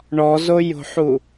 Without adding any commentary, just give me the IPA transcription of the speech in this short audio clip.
ɳ ɔ z o j o̤ ħ u

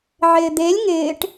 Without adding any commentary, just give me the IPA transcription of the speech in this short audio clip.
ʕ ɪː d̪ e lʲ ŋ ɪː ʈ

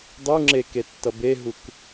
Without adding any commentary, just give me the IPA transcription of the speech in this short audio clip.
dˤ u ŋ͡ǁ e k e tː ʌ b e ɦ u k

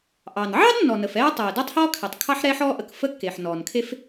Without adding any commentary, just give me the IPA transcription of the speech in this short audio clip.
ʔ ɑ˩ n ʕ ɑ˥ d nː ɔ˩ n ə˩ f ɛː˥ tˤ ɛː˩ d ɛ˥ tˤ h ɔː˥ kʰ e˩ tˤ kʰ ɑ˥ ħ ɾ ɛ˥ ħ ɔː˥ ʔ ə˩ k f ə˥ kː e˩ ħ n ɔː˩ n kʰ e˥ f

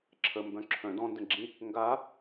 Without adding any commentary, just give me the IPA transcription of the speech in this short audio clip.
ǁʰ ə m b œ̃ ǁʰ œ̃ d ɔ̃ n d ə̃ ɡ͡ǁ ĩ | ŋ ɡ a

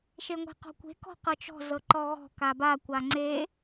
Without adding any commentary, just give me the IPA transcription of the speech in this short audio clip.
ʃ e ŋʷ e̤ q ɔ̤ kʷ e̤ k ɔ̤ q ɤ t͡ʃ ɔ̤ z ɤ ǃ ɔ ɣ ɔ̤ k a b a kʷ a ŋ͡ǀ e

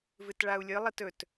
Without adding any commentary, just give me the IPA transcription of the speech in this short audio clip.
v ɨ t ɭ a u̯ lʲ ɨ lˠ i t ɵ t

